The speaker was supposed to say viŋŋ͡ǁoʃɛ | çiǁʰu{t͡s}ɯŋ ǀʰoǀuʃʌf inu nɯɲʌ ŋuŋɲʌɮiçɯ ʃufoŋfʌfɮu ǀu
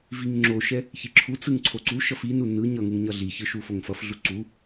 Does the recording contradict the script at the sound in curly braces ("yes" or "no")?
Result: no